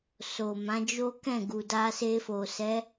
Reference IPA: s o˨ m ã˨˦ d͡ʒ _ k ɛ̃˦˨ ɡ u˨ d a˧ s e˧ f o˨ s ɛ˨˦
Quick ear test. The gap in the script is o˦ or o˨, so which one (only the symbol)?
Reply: o˦